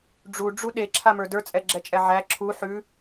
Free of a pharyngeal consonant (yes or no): no